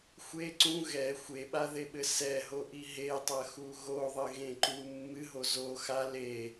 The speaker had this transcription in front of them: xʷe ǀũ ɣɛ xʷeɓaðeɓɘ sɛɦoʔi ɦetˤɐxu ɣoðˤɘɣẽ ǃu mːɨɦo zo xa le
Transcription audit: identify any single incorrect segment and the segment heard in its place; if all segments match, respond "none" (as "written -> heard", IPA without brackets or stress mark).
none